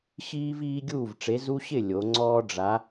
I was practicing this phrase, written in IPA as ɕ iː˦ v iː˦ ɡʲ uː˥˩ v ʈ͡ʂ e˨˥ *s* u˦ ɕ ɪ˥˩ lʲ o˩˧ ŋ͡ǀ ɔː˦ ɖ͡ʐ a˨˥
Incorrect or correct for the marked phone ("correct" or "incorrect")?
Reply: incorrect